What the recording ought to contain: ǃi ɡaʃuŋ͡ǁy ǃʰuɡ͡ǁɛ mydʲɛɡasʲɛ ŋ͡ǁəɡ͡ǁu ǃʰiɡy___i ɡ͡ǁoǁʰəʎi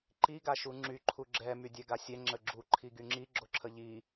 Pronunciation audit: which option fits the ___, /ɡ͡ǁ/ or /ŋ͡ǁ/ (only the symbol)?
ŋ͡ǁ